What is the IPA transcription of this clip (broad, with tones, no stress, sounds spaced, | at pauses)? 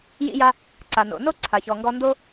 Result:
j ḭ˧ j a˧ | ǀ a˩ n o̰˩ n o˥ ǀʰ a˩ ç ɔ˩ ŋ ɡ ɔ˧ n d o˥